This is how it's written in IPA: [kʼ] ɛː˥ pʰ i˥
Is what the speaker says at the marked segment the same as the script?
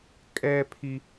yes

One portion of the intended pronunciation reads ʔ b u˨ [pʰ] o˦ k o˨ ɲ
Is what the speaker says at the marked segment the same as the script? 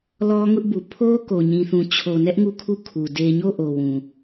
yes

